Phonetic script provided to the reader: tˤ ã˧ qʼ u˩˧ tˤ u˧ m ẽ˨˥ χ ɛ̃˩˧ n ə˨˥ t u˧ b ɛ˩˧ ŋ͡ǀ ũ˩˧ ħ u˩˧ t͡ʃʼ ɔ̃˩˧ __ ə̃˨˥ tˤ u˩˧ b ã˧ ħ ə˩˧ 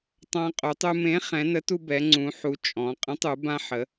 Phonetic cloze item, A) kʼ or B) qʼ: B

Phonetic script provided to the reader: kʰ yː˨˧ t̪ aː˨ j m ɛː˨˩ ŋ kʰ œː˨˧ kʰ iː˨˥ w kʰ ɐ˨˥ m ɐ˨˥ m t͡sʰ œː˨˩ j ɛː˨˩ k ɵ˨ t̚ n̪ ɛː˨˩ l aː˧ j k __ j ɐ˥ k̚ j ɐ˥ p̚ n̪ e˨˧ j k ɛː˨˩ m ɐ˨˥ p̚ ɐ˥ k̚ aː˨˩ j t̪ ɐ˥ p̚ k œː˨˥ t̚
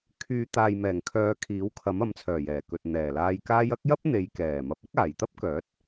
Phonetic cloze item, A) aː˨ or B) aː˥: B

